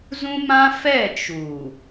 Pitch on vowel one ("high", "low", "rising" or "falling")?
high